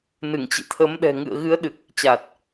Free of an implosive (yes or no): no